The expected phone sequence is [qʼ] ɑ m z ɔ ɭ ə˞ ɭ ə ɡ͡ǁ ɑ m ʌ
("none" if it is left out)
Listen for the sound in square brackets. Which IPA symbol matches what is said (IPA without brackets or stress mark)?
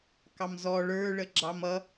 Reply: k